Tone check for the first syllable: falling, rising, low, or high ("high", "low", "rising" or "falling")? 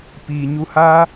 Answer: low